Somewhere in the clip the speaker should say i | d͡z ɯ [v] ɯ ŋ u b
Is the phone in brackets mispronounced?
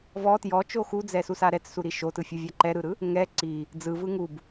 no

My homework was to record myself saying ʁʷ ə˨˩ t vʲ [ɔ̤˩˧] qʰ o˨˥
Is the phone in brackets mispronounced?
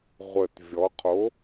yes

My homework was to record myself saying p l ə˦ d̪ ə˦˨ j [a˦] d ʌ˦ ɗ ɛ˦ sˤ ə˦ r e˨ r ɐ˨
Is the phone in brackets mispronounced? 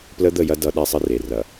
yes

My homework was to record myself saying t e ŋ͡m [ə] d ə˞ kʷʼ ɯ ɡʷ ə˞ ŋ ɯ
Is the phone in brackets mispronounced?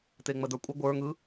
no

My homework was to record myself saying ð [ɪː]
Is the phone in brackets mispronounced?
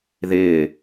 no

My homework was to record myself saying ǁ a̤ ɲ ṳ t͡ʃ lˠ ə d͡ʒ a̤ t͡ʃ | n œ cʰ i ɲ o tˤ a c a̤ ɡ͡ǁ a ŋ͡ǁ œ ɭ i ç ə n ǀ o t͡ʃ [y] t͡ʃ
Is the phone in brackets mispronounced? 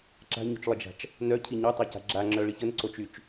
no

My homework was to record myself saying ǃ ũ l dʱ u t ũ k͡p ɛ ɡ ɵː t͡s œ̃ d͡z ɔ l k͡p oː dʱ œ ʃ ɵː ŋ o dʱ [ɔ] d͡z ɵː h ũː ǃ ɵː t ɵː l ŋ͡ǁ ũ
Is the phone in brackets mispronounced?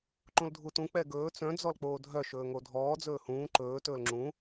yes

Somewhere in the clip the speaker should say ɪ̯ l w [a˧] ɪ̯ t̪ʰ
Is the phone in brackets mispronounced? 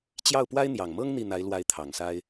yes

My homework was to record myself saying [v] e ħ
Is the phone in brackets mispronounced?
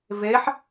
no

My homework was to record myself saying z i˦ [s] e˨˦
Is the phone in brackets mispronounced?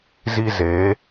yes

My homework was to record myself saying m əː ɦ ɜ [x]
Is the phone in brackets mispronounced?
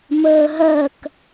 yes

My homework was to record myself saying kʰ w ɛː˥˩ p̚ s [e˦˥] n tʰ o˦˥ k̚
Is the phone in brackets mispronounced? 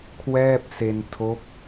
yes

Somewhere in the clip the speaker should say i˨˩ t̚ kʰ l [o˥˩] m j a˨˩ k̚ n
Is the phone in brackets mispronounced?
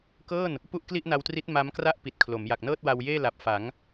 yes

